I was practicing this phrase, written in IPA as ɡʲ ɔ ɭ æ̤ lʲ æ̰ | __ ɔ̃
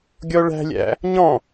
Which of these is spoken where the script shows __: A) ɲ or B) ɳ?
A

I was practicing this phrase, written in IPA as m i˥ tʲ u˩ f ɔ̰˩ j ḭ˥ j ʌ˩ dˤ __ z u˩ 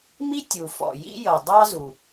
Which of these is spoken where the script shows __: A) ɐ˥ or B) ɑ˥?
B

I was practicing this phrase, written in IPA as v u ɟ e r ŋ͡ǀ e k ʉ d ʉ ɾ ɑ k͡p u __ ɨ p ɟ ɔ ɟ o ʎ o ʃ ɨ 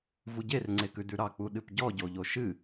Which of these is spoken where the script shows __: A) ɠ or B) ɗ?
B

